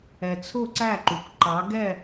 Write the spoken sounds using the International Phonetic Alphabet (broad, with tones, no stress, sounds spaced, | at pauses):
ɛ˨ t͡sʰ ʊ˦˨ ǀ æ˦˨ ǃ u˨ kʷ ǃ ɑ˨˦ ɡ ɛ˦˨